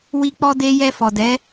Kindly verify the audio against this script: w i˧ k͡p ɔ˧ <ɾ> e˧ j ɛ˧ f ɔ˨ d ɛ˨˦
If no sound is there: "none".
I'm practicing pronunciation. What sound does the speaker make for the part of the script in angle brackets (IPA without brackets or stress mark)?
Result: d